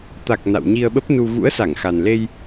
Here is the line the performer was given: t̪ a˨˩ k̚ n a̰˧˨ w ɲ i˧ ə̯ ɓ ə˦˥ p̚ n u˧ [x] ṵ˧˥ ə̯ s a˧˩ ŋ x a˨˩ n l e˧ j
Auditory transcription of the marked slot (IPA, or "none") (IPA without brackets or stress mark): ɣ